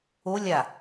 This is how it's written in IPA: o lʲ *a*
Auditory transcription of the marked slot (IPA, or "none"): a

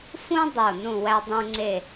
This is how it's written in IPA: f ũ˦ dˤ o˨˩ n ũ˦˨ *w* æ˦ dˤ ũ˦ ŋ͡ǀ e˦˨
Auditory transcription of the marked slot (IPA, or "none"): w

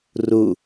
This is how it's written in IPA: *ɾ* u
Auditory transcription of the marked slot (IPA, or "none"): r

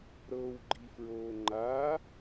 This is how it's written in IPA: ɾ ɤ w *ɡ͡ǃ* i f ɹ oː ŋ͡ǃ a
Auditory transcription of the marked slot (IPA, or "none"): ɡ͡ǃ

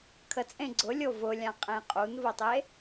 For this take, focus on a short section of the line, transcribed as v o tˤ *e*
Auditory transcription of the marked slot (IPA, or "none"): e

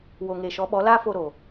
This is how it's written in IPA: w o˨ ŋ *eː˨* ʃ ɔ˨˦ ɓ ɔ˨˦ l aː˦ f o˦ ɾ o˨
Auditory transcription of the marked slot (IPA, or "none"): e˨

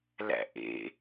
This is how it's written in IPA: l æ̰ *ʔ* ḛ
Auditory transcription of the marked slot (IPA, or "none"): ʔ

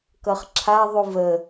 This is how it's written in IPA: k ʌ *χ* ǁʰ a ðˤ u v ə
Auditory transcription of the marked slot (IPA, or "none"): χ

